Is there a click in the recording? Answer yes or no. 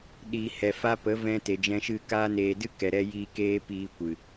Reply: no